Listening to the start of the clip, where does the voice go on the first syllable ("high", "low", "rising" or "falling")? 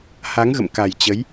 rising